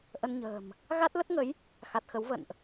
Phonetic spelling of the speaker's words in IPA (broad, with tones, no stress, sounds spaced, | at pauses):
ʔ ə˧ n ɲ ə̤ː˨˩ m | ɣ a˦˥ t̚ l ə˦˥ t̚ ŋ ə˨˦ j | x a˨˩ t̚ x ə˨˦ w v ə̰˧˨ n ʔ